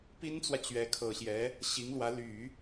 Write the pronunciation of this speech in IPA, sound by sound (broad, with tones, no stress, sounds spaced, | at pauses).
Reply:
p i˥ n t͡s w ä˨ t͡ɕ ɥ ɛ˧˥ kʰ ɤ˨˩ ɕ j ɛ˧˥ | ɕ i˧˥ ŋ l w ä˧˥ l y˨˩˦